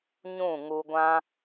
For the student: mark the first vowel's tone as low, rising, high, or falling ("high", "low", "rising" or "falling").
falling